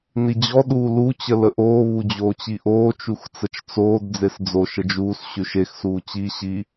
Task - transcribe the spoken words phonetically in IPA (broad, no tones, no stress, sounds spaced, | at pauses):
n i d͡ʑ ɔ ɗ uː l u t͡ɕ ə l ə ʔ oː β u d͡ʑ oː t͡ɕ i ʔ oː t͡ʃ u x t͡s ə t͡ʃ t͡s oː d d͡z e s d͡z o ʃ ə d͡ʒ uː s ɕ ʉ ʃ e x s uː t͡ɕ i ɕ i